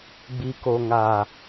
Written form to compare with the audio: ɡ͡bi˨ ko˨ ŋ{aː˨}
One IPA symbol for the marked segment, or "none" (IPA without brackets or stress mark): aː˨